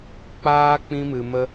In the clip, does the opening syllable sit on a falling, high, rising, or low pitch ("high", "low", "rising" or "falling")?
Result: high